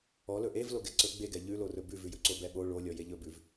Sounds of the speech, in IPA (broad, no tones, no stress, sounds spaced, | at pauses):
ɔ l ɵ ʔ e v l o ɡ ɛ ǀ ɵ ɡ͡b e ɡ ɛ ʎ ʉ l o r ɵ b ʉ v ʉ j ɵ ǀ o b ɛ ɓ o ɭ o lʲ ɔ j e ʎ ɵ b ʉ v